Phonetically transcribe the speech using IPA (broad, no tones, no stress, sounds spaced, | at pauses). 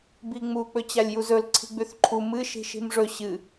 b i ŋ͡m u k͡p ɵ t͡ɕ a lʲ j u z ɵ l ǀʰ i̤ ɡ͡b ʉ θ ǃʰ u m ɨ ʃ i̤ ʃ i̤ m ʐ ɵ ɕ ɨ